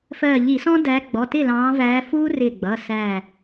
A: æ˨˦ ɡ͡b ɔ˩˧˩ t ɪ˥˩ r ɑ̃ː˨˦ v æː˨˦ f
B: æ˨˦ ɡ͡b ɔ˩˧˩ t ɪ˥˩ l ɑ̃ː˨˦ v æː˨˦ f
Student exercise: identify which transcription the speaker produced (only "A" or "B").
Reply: B